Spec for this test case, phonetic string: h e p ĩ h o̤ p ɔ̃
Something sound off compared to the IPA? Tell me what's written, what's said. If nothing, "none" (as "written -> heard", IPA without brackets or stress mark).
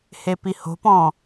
ĩ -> i